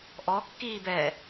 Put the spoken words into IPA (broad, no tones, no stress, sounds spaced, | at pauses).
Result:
ʔ ɔ kː iː b ɛ